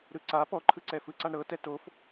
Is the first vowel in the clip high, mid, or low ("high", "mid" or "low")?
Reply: high